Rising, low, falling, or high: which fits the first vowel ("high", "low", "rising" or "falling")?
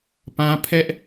high